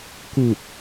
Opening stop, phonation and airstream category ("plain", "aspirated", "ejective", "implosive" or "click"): plain